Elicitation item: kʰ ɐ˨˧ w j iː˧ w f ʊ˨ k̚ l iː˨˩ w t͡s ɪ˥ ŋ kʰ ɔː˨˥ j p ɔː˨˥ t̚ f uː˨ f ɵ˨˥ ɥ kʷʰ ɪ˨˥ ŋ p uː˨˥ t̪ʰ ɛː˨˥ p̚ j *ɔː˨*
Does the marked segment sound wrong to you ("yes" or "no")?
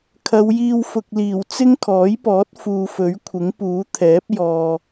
no